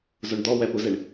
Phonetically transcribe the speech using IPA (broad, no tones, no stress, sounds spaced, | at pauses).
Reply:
z o ɳ d̪ ɔ w ɛ p u z e ɳ